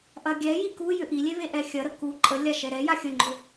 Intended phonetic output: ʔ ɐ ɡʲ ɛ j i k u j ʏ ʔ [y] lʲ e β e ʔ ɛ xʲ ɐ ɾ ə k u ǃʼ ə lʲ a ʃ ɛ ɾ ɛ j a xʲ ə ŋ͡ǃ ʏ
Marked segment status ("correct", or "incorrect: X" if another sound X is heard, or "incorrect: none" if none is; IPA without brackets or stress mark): incorrect: i